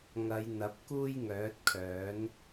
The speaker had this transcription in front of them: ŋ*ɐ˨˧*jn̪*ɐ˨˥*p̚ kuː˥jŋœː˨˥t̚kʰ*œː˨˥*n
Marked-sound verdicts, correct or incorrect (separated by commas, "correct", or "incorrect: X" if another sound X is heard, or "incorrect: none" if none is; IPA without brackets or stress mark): correct, correct, correct